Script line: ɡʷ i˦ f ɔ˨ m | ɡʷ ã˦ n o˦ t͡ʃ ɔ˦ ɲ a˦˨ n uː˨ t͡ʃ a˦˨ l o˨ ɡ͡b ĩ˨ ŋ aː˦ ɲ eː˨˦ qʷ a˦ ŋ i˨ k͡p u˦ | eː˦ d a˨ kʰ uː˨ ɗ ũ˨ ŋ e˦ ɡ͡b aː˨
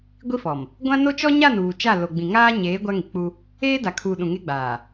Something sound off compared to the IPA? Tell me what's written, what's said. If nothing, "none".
qʷ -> ɡʷ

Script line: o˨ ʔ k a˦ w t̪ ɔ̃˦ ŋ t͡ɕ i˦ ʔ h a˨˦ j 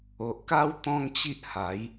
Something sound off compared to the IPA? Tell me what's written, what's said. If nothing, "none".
none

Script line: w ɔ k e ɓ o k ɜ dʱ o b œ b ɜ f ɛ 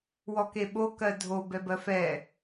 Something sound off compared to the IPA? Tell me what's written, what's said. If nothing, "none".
œ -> ɛ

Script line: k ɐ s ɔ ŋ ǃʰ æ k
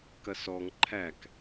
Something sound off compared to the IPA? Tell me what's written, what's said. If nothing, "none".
none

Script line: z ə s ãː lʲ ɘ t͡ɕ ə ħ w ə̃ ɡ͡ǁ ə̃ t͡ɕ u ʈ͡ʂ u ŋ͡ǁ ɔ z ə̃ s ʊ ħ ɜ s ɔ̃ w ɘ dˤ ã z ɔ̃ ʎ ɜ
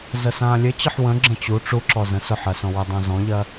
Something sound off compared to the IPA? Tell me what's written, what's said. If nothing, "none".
ŋ͡ǁ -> ǁ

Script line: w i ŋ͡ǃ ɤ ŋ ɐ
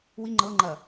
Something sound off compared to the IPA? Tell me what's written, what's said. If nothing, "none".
ŋ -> ŋ͡ǃ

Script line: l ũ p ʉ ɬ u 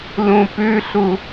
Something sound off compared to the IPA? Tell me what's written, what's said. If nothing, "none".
none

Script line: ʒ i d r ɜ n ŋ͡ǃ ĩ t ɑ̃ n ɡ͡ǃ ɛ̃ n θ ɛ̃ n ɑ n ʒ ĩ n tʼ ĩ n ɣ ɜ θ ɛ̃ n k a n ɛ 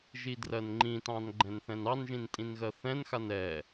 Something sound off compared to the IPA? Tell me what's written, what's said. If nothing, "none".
k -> x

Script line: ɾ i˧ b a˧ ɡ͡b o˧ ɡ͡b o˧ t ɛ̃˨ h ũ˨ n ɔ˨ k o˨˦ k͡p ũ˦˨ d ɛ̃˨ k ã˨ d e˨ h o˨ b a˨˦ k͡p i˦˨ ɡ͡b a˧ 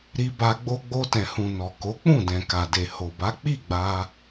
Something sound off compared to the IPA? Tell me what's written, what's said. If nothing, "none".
ã˨ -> a˨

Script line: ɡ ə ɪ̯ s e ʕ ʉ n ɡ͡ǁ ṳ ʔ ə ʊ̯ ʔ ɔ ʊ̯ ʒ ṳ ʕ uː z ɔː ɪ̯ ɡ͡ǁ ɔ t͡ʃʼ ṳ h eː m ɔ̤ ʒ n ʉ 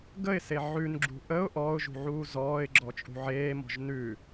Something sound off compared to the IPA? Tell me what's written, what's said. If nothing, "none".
h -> ʕ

